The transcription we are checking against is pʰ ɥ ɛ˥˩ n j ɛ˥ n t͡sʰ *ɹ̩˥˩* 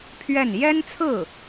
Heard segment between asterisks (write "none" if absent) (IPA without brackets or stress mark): ɹ̩˥˩